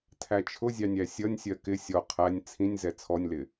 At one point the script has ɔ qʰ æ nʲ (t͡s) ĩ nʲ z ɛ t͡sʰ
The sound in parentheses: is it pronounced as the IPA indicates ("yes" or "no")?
no